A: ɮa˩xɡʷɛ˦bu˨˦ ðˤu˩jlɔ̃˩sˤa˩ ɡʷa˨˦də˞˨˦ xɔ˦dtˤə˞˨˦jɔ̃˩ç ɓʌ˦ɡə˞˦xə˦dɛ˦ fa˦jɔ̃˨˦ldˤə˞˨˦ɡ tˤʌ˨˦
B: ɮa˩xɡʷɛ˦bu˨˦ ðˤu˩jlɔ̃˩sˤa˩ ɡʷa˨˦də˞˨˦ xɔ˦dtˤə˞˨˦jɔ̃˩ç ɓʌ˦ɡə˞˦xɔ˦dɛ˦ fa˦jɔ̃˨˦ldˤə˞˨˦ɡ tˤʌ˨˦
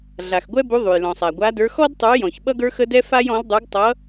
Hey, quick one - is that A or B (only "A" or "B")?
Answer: A